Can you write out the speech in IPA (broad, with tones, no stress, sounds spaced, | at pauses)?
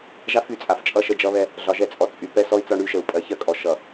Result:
ʒ a˦ f y˨ t͡sʼ a˨ f t͡ʃʼ ʌ˦˨ ʃ ə˦ d͡ʒ ʌ˦ β ɛ˦ | ɮ ɒ˨ ʒ ɛ˦˨ t͡sʼ ɔ˨ t͡sʼ y˨ p ɛ˦ s ɔ˦ i̯ t͡s ɒ˦ ɳ y˦ ʃ ə˨ u̯ pʼ ɜ˨ ç ɜ˦ kʼ ɔ˨ ʃ ʌ˨